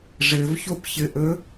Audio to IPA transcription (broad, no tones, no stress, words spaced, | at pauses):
ʐɘvçopçɘʔɵ